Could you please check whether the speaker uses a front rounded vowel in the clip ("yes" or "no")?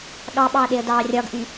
yes